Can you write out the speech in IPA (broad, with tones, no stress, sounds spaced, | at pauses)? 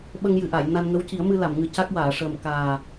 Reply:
ɓ ə˧ ŋ j ɨ˨˩ ʔ a˨˩˨ j n a˧ n ŋ ə˧˥ w c i˨˩˦ ə̯ m ɨ˧ l a˨˩˨ m ŋ ɨ˨˩˦ c a˦˥ k̚ w aː˨˩˨ ʂ əː˨˩ m k aː˨˩